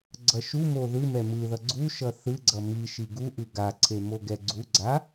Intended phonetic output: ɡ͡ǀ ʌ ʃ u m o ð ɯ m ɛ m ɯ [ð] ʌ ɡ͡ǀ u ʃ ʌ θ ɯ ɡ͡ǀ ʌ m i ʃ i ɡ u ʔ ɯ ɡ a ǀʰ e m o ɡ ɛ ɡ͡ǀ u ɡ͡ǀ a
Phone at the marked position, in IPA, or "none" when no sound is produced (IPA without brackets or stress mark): ð